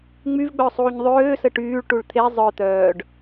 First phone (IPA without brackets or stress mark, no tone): ŋ͡m